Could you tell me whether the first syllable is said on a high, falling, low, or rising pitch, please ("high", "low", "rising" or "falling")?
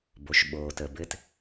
low